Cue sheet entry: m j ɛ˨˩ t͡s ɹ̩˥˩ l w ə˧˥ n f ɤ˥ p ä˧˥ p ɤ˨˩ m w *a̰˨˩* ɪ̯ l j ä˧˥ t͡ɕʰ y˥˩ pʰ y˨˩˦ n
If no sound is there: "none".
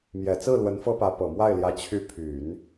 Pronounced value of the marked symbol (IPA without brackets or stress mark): a˥˩